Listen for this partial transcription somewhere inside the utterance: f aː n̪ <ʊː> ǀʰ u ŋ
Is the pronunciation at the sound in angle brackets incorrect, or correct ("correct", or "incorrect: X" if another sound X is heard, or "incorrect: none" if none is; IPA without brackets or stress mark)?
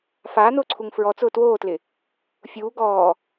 correct